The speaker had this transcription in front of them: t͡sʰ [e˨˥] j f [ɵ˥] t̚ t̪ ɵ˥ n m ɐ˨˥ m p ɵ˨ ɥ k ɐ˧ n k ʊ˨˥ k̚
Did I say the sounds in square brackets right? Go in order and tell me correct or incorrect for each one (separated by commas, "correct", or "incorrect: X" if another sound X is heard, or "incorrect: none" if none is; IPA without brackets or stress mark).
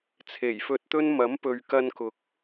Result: incorrect: e˨˩, incorrect: ɵ˧